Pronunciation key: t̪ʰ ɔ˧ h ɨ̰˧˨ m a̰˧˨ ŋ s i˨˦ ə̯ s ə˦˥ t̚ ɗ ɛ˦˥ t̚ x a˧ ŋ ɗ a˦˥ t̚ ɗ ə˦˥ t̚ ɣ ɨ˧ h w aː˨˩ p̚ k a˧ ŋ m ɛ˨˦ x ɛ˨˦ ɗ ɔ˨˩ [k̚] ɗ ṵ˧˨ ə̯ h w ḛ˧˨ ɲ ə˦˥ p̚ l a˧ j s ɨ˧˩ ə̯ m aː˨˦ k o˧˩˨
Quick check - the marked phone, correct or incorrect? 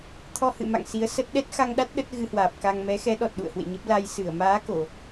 incorrect